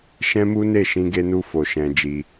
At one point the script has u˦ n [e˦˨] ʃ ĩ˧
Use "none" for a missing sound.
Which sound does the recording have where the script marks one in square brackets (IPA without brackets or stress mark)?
e˦˨